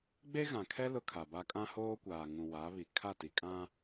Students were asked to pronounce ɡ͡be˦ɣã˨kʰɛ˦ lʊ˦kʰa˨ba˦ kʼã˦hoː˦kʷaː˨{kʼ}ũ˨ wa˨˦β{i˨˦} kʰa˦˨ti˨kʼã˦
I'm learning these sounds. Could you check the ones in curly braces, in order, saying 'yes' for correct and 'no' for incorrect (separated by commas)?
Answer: no, no